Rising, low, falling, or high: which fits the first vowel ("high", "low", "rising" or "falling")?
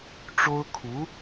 high